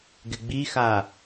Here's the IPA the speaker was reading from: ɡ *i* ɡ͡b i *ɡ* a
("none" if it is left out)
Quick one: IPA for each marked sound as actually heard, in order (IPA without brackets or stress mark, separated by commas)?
ɪ, x